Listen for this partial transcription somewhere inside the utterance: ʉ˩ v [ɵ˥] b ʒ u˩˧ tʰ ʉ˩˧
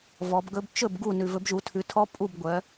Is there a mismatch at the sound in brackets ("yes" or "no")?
yes